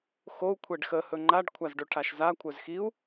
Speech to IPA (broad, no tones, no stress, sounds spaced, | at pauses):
x o u̯ kʷʰ ɛ ɖ x ə h ɵ ŋ͡ǃ a ɖ kʷʰ a z ɖ ɵ ʈʰ a ʃ z a kʷʰ œ z x i u̯